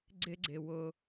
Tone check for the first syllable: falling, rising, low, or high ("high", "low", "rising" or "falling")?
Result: high